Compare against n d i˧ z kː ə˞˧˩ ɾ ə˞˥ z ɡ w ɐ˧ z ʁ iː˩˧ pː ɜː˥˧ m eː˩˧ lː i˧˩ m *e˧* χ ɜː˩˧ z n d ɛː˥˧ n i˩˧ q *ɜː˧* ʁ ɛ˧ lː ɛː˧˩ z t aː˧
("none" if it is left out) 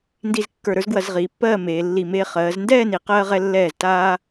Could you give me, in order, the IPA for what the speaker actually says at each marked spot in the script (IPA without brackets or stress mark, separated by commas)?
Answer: eː˧, ɜː˧